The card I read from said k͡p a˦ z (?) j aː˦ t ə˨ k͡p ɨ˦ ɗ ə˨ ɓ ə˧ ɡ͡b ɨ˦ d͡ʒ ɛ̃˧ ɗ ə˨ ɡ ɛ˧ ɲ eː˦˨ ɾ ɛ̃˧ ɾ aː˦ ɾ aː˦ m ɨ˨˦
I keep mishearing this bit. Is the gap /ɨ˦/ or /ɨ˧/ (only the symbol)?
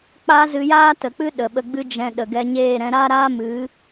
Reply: ɨ˧